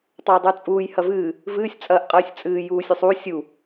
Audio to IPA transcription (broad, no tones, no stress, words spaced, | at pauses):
tˤɐjdˤʉt͡sʼuːj hɐvɨː | vɨːsʲ t͡sʼɐːʔqʼɨːsʲt͡sʼɨː juːsʲʉsˤu sʲu